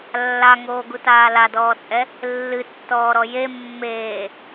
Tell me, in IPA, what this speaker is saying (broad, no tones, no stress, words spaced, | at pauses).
lːaŋoːɡutaː ladɔːt͡sʼɛ | lːɨtːɔːɾɔ je mːeː